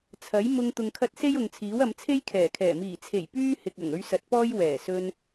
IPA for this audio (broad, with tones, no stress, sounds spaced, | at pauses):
t͡sʰ ɐ˨˥ j m ʊ˧ ŋ t̪ ʊ˨ ŋ kʰ ɐ˧ t̚ s e˥ j ʊ˨ ŋ t͡sʰ iː˨˥ w ɐ˨˧ m t͡sʰ e˥ j kʰ ɛː˨˩ kʰ ɛː˨˩ m iː˨˩ t͡sʰ e˨˩ j p yː˥ h ɪ˨ k̚ ɐ˨˩ ŋ ɵ˧ ɥ s ɐ˨˥ t̚ p ɔː˥ j w ɛː˨˩ s ɵ˧ n